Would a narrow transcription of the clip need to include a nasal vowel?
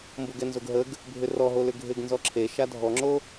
no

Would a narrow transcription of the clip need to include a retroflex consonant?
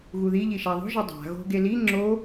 no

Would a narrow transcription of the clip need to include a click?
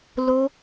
no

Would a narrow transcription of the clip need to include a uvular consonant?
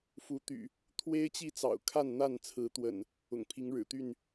no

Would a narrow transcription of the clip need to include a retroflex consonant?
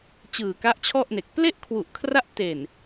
no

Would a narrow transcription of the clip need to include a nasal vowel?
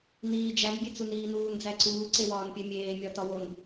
no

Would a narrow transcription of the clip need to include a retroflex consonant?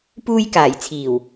no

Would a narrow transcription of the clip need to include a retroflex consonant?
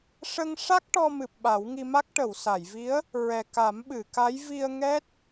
yes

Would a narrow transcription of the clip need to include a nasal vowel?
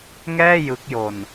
no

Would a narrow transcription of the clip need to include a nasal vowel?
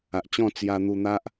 yes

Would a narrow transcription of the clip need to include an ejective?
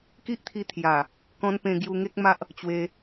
no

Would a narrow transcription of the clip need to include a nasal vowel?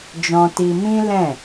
yes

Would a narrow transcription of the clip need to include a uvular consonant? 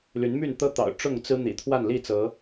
no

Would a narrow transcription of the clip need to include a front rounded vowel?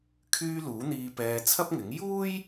yes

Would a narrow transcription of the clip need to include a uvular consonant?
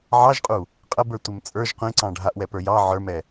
yes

